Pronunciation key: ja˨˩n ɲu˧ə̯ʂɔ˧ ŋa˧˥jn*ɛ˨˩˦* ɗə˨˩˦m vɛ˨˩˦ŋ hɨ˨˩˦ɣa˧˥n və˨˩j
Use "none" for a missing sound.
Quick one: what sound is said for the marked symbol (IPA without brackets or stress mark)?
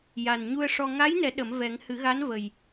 ɛ˨˩˦